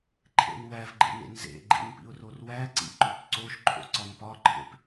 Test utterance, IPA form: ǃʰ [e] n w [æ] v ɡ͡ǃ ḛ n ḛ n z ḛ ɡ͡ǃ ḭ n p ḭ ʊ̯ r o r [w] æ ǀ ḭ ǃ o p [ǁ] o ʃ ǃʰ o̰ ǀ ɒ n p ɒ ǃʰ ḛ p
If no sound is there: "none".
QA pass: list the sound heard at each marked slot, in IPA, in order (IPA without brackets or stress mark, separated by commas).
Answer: ḛ, æ, w, ǀ